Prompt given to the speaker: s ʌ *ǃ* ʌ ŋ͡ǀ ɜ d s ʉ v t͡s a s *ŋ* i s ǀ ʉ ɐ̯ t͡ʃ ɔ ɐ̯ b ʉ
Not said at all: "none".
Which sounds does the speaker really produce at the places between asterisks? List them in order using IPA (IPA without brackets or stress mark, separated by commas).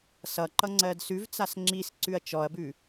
ǃ, ŋ͡ǁ